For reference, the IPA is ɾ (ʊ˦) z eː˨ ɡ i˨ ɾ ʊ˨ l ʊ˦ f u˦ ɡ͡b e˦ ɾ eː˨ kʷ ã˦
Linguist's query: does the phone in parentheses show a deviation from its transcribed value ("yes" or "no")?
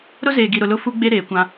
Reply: no